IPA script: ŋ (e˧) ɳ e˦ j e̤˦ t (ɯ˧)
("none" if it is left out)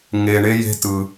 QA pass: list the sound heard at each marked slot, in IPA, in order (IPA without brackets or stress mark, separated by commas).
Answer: e˧, ɯ˧